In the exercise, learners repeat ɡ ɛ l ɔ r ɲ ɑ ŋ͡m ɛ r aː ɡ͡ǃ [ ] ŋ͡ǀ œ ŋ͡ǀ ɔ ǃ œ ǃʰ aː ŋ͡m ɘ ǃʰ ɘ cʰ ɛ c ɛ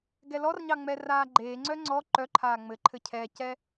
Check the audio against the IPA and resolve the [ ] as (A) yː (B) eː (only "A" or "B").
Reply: B